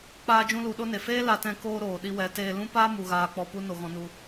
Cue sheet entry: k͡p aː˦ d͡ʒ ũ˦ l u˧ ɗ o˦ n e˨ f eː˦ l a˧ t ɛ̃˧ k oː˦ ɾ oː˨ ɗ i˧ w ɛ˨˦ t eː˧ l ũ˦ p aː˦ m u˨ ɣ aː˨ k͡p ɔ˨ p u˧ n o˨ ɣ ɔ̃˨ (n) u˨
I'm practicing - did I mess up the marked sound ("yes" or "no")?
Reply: no